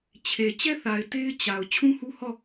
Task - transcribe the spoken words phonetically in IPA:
t͡ɕʰe˨ t͡ɕɛ˦θa˨ɪ̯ te˦ɪ̯t͡ɕa˨ʊ̯ t͡ɕʰũ˦hu˦hɔ˦˨

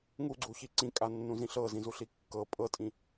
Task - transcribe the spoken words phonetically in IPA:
ŋuɡ͡ǀuçi ǀĩkʼanːũzĩ ɬɤzĩzuɬi kːɤ pʼɤtʼĩ

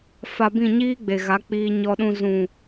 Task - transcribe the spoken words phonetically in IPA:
fa˧bĩ˦˨ɲiː˦ɡ͡be˨ ɣa˨˦k͡piː˧ɲɔ˧ ɗũ˧ zũ˨

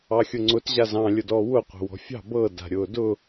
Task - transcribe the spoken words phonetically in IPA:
ɑxʲʊŋ͡ǀʊt ʑazɑ̃ lʲʊdɔwʊ qʷɑ̤wɔ̤fʲɑ̤ bɤ da̤ɾʲʊːdʊ

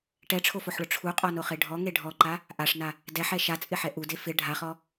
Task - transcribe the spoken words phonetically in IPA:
ʈɛʈ͡ʂʰofoħɭʊ ʈ͡ʂʰuqʼɔnoχe ɖʱɔŋe ɖʱɔǃa | ʔaʂna | dɛħɛ ʃat͡sʼɪħɛ ʔude fɪ ɖʱaχɔ

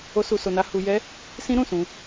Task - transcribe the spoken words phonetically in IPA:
o˦su˧so˧na˦ hu˧jɛ˦ | sĩ˦ɾũ˦˨sũ˧

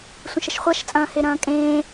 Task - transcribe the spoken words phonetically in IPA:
sʷɐ̃ʃɐʃχʷaʃt͡sʼɐ̃ː heɾɐ̃ːkʼẽː

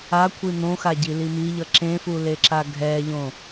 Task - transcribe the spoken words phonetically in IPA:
akʷʰi n̪õxaɟili miʎʌ ǁẽfuleǁa ɡʱɛʎõ

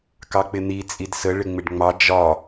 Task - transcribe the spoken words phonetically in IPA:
kɑk͡pɪn̪i t͡sʼidsə ɭɪŋ͡mɪɖŋ͡mɑ d͡ʒɒ

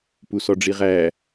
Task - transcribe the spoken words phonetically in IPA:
pusɔɖ͡ʐiʁæ

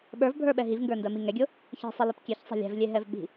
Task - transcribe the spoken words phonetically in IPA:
ɓə˞vbʱə˞ɓɛ ɦivŋɡə˞ndɜmi ŋɛɡʲʊ | çe̤sˤɛlip kʲɛçsˤɛ̤ lʲɛ̤vlʲeɦɛv ɓi̤

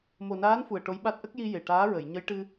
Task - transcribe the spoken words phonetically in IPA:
mo˨˩naː˧˥n fu˨˩ə̯ʈo˧˥jɓa˦˥t̚ ʔə˦˥k̚ji˧ je˨˩ʈaː˧˥ɹə˨˩˨j ɲə˧˥jʈɨ˧

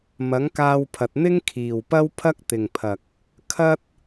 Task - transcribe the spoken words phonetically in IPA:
mɐ˨˥ŋkaː˧wpʰɐ˨t̚ n̪ɪ˥ŋkʰiː˨wpɐ˥w pʰɐ˥k̚t̪ɪ˨ŋpʰɐ˨k̚ | kʰɐ˥t̚

